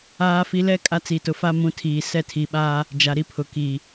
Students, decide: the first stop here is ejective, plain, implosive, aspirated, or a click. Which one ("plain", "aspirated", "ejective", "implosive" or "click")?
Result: ejective